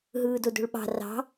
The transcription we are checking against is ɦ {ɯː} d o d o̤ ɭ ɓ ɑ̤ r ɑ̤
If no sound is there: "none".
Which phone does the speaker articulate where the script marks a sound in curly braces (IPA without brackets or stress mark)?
ɯː